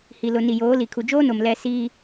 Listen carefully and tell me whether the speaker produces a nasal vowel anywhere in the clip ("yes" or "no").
no